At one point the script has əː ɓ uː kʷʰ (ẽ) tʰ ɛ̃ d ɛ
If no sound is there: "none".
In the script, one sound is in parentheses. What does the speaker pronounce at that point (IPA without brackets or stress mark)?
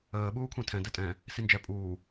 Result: ẽ